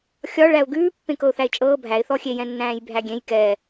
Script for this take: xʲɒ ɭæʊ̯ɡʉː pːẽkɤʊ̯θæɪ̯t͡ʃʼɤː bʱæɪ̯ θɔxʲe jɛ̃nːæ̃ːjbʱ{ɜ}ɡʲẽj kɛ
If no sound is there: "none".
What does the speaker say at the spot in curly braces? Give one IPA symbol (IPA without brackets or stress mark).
æ